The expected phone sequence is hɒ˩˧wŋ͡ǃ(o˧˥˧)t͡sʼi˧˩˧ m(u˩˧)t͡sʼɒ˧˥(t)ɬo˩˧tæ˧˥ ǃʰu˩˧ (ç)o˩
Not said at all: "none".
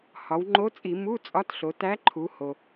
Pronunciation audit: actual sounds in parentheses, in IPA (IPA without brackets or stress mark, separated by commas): o˧˥, u˧˥˧, t, h